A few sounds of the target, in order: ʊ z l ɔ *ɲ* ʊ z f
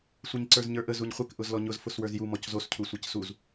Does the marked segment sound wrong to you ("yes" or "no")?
no